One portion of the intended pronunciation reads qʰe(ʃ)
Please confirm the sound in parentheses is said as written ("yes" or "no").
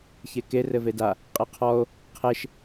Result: yes